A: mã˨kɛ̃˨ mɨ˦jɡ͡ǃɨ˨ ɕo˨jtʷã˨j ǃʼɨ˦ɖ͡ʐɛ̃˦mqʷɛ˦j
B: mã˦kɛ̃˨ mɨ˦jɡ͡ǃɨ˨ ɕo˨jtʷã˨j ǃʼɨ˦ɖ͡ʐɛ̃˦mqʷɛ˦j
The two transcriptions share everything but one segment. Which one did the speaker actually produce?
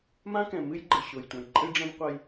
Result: B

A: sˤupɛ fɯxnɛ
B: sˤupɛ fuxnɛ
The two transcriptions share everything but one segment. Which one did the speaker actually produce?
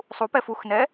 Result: B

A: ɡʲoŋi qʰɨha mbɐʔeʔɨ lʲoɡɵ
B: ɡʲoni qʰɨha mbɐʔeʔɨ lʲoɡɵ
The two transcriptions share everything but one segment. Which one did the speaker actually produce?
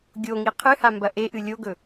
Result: A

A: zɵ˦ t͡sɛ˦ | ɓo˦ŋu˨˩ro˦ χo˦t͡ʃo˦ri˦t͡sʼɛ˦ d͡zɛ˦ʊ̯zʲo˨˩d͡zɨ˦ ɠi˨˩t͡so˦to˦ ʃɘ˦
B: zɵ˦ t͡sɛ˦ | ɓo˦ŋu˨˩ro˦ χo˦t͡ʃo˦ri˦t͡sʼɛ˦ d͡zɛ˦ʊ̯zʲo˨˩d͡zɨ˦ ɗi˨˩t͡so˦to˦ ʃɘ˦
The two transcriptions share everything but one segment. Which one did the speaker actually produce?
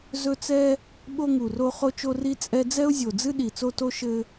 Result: B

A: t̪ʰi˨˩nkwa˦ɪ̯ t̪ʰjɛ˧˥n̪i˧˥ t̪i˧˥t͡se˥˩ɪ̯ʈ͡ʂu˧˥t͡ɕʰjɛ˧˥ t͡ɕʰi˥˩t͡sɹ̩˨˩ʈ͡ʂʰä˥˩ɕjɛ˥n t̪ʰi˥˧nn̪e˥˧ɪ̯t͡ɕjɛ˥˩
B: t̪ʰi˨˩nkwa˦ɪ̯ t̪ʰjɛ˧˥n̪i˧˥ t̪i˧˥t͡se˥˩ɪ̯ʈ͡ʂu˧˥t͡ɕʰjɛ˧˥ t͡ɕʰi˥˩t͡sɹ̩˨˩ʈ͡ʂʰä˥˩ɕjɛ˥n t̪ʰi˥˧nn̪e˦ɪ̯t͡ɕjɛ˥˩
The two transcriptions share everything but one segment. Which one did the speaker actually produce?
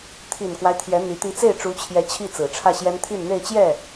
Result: A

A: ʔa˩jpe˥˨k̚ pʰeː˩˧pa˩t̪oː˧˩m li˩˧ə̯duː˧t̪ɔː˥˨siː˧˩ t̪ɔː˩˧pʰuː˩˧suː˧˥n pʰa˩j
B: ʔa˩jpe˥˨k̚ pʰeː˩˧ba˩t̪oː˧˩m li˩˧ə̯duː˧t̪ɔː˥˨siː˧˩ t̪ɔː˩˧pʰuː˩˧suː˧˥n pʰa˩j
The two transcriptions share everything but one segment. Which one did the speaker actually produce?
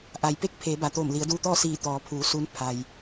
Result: B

